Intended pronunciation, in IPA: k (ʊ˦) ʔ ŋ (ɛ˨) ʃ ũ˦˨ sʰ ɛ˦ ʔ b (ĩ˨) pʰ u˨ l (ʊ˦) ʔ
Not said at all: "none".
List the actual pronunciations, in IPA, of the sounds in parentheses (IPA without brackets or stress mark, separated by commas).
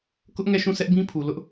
ʊ˦, ɛ˦˨, ĩ˦, ʊ˦